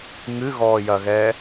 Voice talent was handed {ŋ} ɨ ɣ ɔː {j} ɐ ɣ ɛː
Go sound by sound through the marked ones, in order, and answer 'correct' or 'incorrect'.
correct, correct

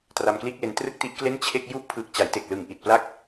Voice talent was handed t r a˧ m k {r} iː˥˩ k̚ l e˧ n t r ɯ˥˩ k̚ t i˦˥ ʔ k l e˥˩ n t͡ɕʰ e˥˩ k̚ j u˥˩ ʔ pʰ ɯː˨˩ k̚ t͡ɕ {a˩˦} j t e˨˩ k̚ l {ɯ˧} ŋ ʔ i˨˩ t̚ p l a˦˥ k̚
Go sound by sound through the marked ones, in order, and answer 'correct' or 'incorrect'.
incorrect, correct, incorrect

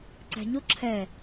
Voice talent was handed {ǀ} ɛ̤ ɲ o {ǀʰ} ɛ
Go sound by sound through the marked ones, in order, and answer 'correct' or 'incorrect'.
correct, incorrect

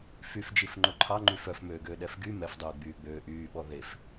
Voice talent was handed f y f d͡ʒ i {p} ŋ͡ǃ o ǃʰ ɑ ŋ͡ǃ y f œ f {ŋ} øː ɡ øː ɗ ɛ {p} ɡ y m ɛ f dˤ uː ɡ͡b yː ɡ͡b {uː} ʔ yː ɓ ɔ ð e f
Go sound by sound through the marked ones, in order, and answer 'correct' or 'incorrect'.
incorrect, incorrect, incorrect, incorrect

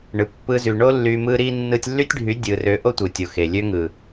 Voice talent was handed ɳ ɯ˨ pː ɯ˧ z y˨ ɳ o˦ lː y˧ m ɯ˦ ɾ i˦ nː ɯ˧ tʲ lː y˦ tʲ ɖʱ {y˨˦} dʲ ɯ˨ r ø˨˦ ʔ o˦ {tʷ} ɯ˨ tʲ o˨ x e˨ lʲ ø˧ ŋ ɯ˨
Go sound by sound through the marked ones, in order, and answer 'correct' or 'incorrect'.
correct, correct

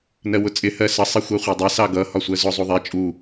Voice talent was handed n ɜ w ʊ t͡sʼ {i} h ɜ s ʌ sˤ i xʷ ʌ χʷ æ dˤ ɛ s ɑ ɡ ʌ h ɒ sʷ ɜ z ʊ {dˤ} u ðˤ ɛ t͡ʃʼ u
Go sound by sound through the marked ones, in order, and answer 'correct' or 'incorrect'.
incorrect, incorrect

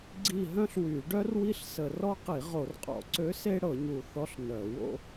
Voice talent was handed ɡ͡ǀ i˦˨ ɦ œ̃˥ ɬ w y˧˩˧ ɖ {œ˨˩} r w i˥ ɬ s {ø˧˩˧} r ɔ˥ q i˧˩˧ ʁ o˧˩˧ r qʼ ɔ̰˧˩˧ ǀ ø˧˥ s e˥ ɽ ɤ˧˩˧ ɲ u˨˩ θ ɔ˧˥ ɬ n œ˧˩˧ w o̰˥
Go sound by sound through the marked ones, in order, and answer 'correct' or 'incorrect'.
incorrect, incorrect

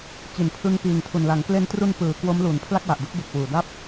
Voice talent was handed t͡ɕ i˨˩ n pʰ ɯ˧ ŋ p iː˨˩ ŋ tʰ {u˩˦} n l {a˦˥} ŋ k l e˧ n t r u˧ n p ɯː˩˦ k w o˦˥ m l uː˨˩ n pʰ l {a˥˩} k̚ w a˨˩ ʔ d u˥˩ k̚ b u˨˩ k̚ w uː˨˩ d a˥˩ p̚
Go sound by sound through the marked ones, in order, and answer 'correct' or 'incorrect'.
incorrect, incorrect, correct

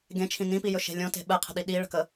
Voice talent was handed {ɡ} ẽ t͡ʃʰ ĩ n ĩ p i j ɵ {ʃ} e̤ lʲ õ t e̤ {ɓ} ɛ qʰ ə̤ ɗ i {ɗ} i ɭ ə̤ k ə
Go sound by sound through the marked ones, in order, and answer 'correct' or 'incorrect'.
correct, correct, correct, correct

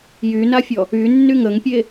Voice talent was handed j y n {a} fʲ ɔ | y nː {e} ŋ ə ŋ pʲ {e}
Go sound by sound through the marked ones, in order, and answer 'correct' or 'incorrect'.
correct, incorrect, correct

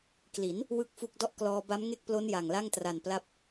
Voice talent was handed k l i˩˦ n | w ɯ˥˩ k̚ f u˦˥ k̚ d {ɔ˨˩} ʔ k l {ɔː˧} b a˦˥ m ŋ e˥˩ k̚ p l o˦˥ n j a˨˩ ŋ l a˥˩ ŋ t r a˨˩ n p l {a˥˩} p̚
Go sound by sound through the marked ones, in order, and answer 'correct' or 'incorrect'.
incorrect, correct, incorrect

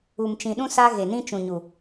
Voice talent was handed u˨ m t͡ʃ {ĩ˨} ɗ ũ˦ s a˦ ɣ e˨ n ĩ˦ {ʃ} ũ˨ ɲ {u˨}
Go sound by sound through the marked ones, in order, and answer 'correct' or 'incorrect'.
correct, incorrect, correct

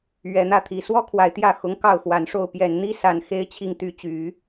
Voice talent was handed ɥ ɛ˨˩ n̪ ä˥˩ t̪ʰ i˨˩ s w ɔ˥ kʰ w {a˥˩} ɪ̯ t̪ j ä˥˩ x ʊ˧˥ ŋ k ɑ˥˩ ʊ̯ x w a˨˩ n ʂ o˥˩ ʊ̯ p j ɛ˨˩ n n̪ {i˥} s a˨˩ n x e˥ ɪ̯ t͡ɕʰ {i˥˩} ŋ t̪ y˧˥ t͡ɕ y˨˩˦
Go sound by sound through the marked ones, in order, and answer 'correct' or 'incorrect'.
incorrect, correct, correct

